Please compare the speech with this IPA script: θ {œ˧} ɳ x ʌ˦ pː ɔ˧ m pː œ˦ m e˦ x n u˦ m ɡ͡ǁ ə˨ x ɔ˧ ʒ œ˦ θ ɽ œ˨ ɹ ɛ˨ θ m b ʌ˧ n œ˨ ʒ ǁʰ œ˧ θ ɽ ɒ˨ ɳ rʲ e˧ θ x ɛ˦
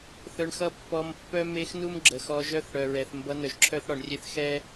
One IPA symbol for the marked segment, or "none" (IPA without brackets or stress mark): œ˧